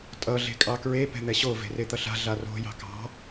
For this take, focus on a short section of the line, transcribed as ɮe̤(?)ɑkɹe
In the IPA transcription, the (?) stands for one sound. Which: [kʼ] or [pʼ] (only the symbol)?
kʼ